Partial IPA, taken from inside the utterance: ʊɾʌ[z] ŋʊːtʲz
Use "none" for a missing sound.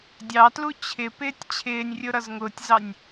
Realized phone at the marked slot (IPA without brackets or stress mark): z